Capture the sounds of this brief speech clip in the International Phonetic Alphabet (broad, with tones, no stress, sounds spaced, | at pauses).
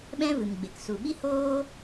ɓ ɛ̃˦ v ɨ˨ m ɡ͡b e˨ k s u˨ ɓ i˦ h oː˦